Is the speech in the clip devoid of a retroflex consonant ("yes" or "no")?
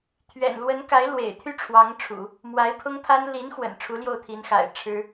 no